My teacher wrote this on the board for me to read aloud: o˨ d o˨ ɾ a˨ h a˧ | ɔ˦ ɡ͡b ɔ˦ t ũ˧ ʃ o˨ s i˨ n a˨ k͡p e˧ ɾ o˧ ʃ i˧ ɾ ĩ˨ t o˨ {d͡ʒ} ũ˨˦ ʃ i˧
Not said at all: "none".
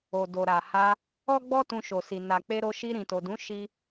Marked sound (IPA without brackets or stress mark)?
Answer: d